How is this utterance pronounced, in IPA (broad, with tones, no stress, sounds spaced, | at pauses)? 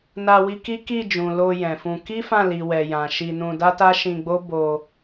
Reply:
n a˧ w i˧ k i˦ k i˦˨ d͡ʒ ũ˨ l o˧ j ɛ̃˨ f ũ˧ k i˦ f ã˦˨ l i˨ w ɛ˨ j ã˨ ʃ i˧ n ũ˧ d a˦ t a˦ ʃ ĩ˧ ɡ͡b o˦ b o˧